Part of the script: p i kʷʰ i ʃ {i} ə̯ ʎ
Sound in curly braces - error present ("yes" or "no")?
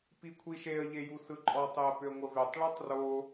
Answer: yes